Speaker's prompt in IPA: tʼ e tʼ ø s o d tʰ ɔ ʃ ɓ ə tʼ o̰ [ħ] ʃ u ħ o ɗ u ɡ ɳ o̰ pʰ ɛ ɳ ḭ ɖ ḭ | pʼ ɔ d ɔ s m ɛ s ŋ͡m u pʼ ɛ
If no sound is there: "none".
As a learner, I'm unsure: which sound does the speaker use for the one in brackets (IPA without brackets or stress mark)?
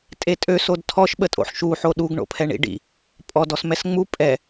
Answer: ħ